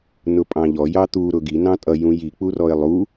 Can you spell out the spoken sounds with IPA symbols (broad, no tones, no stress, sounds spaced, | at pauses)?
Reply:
n ʊ pʼ ɑ̃ ʎ ɔ j ɑ t̪ u ɾ ʊ ɡ i n ɑ̃ tʼ ʌ j ũ j i k͡p u r ɔ ɪ̯ lˠ u